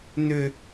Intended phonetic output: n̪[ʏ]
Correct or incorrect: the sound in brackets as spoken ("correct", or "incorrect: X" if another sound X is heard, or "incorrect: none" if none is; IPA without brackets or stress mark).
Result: correct